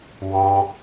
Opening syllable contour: high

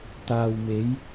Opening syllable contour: low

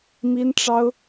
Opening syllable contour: high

